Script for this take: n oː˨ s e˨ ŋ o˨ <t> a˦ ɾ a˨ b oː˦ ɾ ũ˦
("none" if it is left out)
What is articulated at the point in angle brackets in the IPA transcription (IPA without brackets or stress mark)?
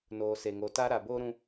t